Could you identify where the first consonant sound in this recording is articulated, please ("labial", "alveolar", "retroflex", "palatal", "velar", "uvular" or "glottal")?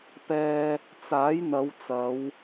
labial